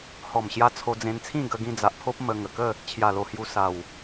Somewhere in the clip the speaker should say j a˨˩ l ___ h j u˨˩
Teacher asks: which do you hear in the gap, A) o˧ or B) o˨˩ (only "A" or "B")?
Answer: B